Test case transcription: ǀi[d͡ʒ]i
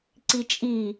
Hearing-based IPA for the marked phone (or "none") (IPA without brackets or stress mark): t͡ʃʼ